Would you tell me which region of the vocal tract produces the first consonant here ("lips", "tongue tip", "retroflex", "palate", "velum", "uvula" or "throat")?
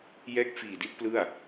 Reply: palate